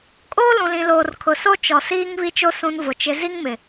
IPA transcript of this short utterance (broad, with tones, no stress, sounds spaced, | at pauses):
kʼ oː˦ l ũ˨ l ĩ˨ l oː˨ r kʰ ʊ˨ s o˦ t͡ʃ ɔ˨ s iː˦ ŋ β i˦ t͡ʃ o˦ s ũ˦ n v ʊ˨ t͡ʃ ɪ˦ z i˦ ŋ m ɪ˨